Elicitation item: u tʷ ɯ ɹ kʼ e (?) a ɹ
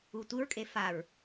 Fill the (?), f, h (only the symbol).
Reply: f